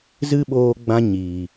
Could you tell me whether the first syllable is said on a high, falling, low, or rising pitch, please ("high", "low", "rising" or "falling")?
high